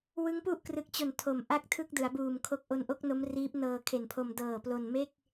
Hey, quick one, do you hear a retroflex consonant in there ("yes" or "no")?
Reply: no